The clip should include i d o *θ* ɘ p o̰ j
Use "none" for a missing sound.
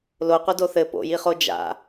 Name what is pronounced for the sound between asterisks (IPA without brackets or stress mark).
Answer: θ